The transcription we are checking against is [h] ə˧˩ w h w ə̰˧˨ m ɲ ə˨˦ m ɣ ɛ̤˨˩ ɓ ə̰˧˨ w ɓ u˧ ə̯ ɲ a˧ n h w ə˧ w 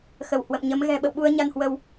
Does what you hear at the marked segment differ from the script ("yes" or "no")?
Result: yes